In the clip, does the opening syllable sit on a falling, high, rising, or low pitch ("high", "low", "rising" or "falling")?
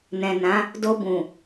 low